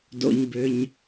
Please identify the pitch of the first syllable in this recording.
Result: low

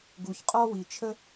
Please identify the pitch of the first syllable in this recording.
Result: low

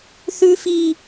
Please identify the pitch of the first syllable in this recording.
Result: high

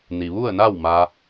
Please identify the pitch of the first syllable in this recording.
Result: low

